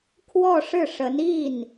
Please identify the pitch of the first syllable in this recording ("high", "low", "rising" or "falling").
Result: falling